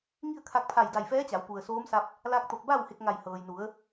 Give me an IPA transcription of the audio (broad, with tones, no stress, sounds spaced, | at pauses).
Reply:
ŋ i˥˨ ə̯ kʰ a˧ k̚ pʰ a˧˩ j d a˧˩ j f ɛː˧˥ t͡ɕ a˩˧ w p u˩ ə̯ s oː˧˥ m s a˧ p̚ | l a˧ k̚ t̪ o˧˩ k̚ b a˥˨ w h e˧ k̚ ŋ a˧˩ j h ɤː˩ j n u˩˧ ə̯